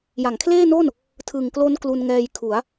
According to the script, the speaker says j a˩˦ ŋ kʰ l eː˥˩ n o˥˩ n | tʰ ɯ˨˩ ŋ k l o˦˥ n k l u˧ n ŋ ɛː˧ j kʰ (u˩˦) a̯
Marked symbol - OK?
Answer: yes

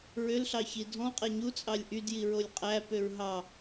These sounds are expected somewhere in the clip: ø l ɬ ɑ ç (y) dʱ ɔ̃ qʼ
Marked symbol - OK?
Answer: no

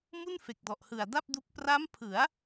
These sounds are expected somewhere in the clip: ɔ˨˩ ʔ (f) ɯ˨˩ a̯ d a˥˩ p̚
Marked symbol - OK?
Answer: no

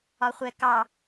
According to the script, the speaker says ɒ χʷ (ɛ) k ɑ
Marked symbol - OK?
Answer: yes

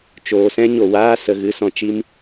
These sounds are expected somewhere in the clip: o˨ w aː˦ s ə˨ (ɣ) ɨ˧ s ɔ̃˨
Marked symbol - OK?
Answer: yes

